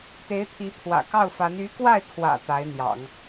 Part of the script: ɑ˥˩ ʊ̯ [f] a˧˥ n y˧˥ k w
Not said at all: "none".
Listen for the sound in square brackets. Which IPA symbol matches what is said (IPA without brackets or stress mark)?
f